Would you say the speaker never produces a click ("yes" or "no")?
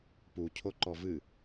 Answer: no